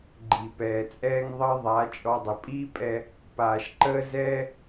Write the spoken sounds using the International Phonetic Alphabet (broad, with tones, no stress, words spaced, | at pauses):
ɡ͡ǃi˨pɛː˨t͡sʼɛː˦ŋ ðˤəː˦ðˤa˨˦ t͡ʃʼɔ˧dˤə˨ pʼiː˦pʼɛ˧ | paː˨ʃǃəː˦zɛː˦